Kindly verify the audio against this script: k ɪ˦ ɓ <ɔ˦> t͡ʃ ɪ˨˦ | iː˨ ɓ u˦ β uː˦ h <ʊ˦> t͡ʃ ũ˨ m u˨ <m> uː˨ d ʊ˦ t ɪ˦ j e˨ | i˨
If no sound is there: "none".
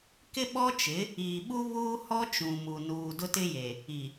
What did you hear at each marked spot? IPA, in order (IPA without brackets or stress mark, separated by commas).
ɔ˦, ɔ˦, n